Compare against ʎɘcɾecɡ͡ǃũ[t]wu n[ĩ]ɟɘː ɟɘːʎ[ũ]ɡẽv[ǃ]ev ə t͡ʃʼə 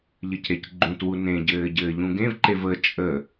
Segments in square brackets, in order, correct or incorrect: correct, incorrect: ẽ, correct, correct

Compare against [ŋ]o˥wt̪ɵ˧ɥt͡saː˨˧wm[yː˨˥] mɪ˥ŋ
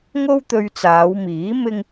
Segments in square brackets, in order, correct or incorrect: correct, incorrect: iː˨˥

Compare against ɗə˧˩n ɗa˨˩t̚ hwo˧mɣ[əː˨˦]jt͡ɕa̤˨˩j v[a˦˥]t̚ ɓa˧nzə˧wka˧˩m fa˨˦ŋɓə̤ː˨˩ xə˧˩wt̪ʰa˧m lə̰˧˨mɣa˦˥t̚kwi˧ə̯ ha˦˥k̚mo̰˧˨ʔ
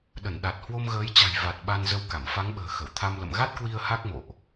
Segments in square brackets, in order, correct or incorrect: correct, incorrect: a˨˩

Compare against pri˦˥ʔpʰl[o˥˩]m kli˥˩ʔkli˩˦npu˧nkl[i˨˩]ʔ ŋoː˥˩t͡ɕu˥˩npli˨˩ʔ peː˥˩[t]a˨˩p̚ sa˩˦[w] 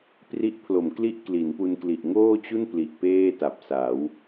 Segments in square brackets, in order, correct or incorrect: incorrect: o˨˩, correct, correct, correct

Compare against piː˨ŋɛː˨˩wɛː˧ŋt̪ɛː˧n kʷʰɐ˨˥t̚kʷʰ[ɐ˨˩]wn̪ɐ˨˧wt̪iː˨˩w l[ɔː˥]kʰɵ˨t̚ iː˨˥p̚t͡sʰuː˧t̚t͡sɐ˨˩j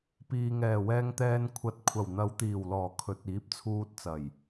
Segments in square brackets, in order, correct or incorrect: correct, incorrect: ɔː˨˩

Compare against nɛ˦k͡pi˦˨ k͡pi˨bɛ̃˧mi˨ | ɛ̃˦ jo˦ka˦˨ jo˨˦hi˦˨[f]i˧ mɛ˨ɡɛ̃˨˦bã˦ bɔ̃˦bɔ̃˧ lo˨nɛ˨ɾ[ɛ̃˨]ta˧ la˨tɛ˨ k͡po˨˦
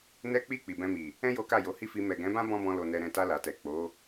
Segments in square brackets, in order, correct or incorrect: correct, correct

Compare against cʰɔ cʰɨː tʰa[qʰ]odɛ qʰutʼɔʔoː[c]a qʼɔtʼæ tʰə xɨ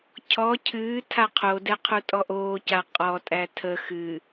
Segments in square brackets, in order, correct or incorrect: correct, correct

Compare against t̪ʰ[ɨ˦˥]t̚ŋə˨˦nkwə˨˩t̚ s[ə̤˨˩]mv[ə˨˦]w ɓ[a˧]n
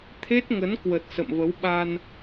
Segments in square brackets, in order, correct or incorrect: incorrect: e˦˥, incorrect: ə̰˧˨, correct, correct

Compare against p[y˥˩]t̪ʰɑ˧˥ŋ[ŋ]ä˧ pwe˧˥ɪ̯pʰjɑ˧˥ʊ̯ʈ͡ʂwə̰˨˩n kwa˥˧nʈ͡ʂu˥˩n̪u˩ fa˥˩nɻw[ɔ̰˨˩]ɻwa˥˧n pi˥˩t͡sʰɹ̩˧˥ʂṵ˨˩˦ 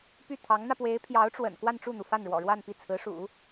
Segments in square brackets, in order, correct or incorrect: correct, incorrect: n̪, correct

